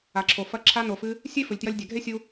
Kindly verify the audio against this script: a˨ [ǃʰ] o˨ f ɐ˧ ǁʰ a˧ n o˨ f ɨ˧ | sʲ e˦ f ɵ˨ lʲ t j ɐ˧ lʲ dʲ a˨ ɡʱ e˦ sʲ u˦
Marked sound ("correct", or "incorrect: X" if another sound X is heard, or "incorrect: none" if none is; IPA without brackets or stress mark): incorrect: ǁʰ